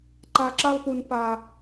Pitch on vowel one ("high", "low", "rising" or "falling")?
low